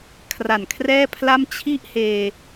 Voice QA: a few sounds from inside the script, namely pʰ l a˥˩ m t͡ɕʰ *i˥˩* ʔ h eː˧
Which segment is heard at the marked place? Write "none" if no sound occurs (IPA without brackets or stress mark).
i˥˩